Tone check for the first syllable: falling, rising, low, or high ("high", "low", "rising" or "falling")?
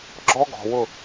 high